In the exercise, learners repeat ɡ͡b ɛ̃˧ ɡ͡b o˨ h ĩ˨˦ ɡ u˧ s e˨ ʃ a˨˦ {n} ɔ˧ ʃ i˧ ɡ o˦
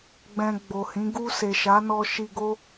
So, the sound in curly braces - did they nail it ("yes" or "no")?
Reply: yes